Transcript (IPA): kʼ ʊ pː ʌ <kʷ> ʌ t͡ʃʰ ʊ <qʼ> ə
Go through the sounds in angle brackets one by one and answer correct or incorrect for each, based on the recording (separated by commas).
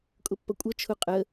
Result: incorrect, correct